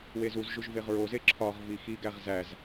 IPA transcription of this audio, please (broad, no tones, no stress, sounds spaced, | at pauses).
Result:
w e z u z ʒ u ʒ v e ʁ ɹ o z e ǁʰ ɒ ʁ v i x i ɡ æ ʁ z æ z